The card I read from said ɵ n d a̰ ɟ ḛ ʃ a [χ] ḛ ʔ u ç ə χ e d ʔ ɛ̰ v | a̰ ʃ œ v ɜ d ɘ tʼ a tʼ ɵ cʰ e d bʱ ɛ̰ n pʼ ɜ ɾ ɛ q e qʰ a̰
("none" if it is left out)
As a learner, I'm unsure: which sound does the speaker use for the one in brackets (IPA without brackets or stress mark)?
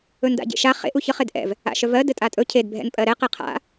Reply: χ